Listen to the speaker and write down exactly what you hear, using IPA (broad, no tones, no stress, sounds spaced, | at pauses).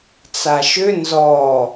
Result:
t͡s a ʃ ʏ n z ɔ